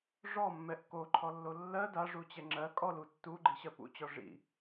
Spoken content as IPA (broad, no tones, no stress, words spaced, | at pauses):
ʐɔmːɛʔ koǃʰɔlːo lːɜ daʐut͡ɕɛ ŋ͡ǁɜ kʼɔlu tːuɡ͡ǃiɕɜ pṵt͡ɕɔ ʐḭ